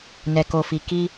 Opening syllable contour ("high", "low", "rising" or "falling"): low